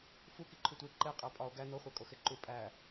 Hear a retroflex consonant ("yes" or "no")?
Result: no